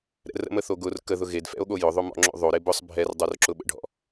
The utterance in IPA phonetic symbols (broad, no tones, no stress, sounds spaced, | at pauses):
ɾ ɛ̰ r ə̰ m ə θ o ɡ ʊ r k ə ð ʊ ɣ e d f ɛ̰ o̯ ɠ o j ʊ ðˤ o m ɔ̰ ŋ͡ǁ o̰ ðˤ o ɾ e b ʊ sˤ bʱ ɛ r dˤ o r ǁ ʊ ɓ ə̰ ɖʱ ɔ̰